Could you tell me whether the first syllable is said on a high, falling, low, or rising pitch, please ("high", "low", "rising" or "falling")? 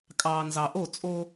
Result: low